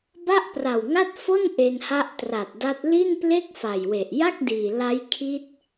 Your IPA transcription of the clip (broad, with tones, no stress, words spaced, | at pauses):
ba˥˩ʔpra˨˩wŋa˥˩t̚ fo˥˩n ʔe˧nha˦˥ʔtra˨˩t̚da˦˥t̚ li˥˩nple˥˩k̚ fa˨˩jwe˨˩ʔ ja˥˩k̚ diː˨˩ la˦˥jkʰi˦˥t̚